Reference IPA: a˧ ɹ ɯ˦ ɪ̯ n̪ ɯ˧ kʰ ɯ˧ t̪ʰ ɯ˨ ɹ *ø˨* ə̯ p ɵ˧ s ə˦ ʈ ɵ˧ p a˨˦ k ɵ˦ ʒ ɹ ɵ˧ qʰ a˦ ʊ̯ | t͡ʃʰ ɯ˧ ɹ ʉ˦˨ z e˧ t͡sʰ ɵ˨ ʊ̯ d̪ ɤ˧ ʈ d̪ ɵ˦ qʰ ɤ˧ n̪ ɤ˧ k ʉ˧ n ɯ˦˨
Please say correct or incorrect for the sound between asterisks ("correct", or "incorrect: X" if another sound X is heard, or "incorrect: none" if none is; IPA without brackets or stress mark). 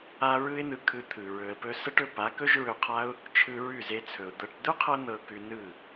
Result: incorrect: ɵ˨